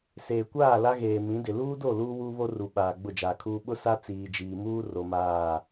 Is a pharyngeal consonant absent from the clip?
yes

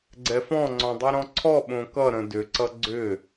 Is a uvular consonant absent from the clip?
yes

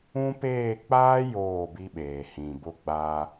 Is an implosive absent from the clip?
no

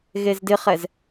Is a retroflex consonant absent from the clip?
yes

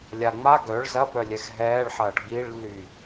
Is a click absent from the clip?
yes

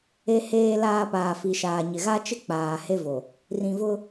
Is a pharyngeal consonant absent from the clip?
yes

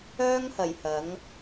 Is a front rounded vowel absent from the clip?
no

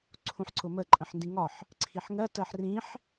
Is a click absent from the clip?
no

